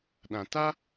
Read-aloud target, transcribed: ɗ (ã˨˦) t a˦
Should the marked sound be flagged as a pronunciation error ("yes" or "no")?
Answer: yes